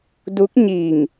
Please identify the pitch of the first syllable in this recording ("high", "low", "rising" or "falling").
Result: rising